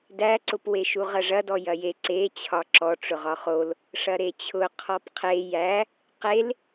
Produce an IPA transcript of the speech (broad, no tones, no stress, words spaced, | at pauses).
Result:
dæǀʊpweʃu ʁɐʐɐdɔ jɐje ǀet͡ɕʰɒ ǁɔʈ͡ʂʊ ʁɒχol | ʂɐɾet͡ɕʰʊ qʰɔpqʰe jæ | qel